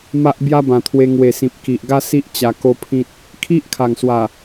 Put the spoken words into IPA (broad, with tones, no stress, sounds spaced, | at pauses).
m a˦ ʔ b j a˦ b ã˨˩ t̪ʰ w e˧ ŋ w e˨˩ s ĩ˨ p̚ k i˨ ʔ ɡ a˦ s i˦ ʔ t͡ɕ a˧ k o˦ pʰ ĩ˦ t̚ | kʰ i˦ ʔ kʰ a˨˩ ŋ s w a˨˩